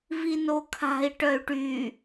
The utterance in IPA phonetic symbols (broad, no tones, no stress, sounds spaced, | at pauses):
v i n o kʰ a̤ i̯ ʈ œ y̯ ʈ y